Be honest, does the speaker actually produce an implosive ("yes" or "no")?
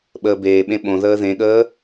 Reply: yes